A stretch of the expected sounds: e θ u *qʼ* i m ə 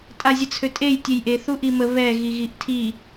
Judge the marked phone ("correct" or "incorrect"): incorrect